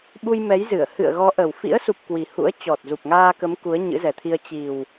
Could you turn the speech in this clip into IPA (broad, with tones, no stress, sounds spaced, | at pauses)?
ɓ u˧ j m ɛ˨˦ j z ɨ˧˩ ə̯ h ɨ̰˧˨ ə̯ ɣ ɔ˨˦ ʔ ə˨˩ w f ḭ˧˥ ə̯ s u˨˩ p̚ k w i˨˩ h ṵ˧˥ ə̯ t͡ɕ ɔ˨˩ t̚ z u˨˩ p̚ ŋ aː˧ k ə˨˦ m k u˨˦ ə̯ ɲ ɨ̰˧˥ z ɛ˨˩ t̪ʰ i˧ ə̯ t͡ɕ i˨˩ w